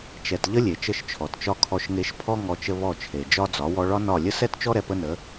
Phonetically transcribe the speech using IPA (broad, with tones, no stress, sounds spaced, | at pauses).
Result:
t͡ʃ ɛ˨ t ʎ ə˦ lʲ e˨ t͡ʃ ə˦˨ ʃ t͡ʃʰ ɔ˨ t t͡ʃ ɒ˦ kʰ ɔ˧ ʃ ŋ e˧ ʃ pʰ ɔ˦ ŋ ɔ˧ t͡ʃ ə˦ β ɔ˦˨ t͡ʃʰ e˨ d͡ʒ ɒ˦ d͡z ɒ˨˦ w ɔ˧ ɭ ɒ˦ n ɒ˦˨ lʲ ə˦ s ɛ˦ t t͡ʃ ɔ˦ ɾ ɛ˧ p ə˦ n ə˨˦